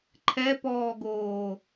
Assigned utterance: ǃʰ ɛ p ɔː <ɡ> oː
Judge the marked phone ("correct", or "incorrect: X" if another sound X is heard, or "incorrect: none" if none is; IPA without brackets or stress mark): correct